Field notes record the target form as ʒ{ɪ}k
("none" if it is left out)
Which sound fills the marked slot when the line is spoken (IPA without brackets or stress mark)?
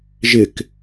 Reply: ɪ